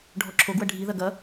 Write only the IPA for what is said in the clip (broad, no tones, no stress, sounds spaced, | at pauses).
ɖʱ ɔ ǁʰ o ɡ w ɐ ɖʱ i ð ɐ ɡ ɐ